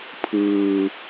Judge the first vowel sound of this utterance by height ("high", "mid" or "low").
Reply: high